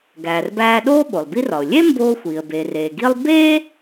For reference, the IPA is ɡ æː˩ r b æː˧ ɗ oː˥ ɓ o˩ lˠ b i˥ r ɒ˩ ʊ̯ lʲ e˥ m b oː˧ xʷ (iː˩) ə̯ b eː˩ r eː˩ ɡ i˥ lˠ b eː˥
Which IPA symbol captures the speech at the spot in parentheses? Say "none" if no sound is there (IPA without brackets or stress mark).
iː˩